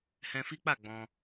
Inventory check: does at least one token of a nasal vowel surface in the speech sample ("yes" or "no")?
yes